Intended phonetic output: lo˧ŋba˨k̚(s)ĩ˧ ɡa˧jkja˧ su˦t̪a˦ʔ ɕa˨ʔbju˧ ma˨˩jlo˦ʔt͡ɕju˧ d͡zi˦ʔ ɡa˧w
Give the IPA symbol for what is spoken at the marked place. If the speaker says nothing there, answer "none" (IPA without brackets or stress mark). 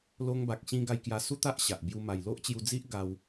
ɕ